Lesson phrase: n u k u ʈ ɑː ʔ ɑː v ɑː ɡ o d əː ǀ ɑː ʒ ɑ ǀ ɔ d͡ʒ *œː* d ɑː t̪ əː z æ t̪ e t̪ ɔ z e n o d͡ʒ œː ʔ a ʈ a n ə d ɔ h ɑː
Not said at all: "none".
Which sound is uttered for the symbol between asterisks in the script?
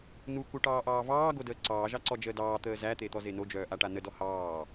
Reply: əː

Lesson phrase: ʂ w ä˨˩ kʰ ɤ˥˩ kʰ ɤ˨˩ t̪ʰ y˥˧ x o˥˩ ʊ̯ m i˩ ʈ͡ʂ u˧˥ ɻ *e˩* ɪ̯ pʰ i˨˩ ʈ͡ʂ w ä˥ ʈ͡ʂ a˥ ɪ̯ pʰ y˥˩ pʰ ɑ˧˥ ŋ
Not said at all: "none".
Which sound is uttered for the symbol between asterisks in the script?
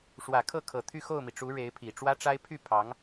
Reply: e˧˥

